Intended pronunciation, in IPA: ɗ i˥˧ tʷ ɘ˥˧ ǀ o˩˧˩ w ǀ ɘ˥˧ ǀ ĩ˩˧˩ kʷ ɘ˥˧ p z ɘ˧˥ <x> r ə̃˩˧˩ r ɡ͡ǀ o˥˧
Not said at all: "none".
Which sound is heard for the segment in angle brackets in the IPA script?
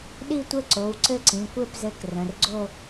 k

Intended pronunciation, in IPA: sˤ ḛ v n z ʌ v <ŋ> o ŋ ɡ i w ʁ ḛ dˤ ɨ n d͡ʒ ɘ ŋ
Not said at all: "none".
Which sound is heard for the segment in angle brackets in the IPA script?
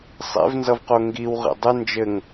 q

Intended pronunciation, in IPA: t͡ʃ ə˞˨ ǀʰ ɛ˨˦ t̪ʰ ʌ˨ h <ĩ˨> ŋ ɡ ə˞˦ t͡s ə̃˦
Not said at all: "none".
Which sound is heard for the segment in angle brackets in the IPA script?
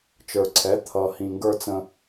ĩ˨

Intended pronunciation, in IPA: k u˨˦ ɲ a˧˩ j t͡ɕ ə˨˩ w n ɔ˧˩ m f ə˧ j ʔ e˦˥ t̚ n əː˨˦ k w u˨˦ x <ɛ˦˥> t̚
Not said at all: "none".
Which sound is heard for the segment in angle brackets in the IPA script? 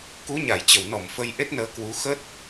ə˦˥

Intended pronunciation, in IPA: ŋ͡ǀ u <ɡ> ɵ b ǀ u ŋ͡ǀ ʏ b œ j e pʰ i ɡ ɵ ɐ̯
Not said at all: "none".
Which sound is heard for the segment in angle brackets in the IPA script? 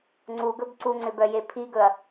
ɡ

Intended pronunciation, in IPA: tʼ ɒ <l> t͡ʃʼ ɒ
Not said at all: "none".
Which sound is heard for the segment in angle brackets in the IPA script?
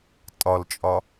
l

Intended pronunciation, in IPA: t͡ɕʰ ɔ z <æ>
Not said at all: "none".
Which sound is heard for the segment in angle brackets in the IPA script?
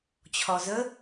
ə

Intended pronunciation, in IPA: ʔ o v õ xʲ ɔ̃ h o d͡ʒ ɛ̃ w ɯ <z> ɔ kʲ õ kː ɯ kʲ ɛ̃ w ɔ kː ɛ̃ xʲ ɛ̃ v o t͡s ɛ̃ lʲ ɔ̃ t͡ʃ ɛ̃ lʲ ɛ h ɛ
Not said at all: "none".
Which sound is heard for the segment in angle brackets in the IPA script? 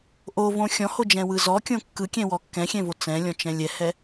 z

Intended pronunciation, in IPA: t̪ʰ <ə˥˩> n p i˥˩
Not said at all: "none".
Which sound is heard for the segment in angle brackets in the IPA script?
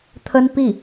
ə˥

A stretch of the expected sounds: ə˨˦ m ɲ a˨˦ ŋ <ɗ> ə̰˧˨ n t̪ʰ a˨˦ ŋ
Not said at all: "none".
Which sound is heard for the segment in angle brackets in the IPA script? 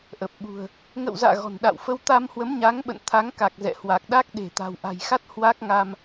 ɓ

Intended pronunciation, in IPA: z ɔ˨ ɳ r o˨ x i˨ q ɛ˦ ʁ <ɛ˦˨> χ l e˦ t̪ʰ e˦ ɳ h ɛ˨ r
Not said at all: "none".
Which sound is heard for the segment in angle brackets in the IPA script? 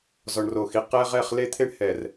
ɛ˦˨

